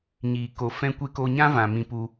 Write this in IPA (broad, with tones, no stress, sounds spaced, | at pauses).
ɲ iː˨ k o˨ f ɛ̃˦ kʷ e˦ k o˧ ɲ ã˦ v ã˨ m ĩ˧ p u˧